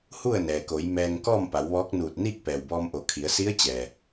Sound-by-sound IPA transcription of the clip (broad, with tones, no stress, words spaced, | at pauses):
hu˥˨ə̯nɛː˩ko˩˧j mɛː˧ŋ kɔː˥˨mpa˩˧w ʋɔː˧˥k̚nuː˧˩t̚ niː˥˨k̚pɛː˩wbɔː˧m ʔo˩˧kʰi˩˧ə̯ si˧˥ə̯t͡ɕɛː˩